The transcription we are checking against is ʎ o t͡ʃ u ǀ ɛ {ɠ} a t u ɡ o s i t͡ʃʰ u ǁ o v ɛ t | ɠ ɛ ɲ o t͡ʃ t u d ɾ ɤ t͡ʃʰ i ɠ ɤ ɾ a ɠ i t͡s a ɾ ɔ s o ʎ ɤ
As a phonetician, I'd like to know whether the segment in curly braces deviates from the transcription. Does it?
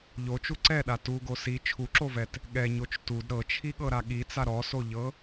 yes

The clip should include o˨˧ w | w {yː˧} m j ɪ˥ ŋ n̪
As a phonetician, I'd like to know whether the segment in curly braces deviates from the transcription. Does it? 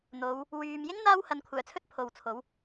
no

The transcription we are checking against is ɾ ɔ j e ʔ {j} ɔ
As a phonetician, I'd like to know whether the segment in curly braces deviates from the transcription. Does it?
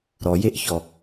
yes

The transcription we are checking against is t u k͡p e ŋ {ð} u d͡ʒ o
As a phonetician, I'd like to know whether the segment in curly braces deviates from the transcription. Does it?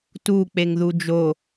no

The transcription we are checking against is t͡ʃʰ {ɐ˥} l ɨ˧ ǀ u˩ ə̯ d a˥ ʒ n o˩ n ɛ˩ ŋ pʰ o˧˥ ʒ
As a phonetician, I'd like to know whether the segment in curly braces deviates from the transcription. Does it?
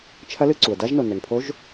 yes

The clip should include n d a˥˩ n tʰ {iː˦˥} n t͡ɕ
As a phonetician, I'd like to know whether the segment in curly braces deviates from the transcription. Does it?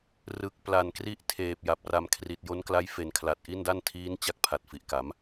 no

